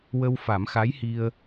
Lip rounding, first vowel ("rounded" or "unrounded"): unrounded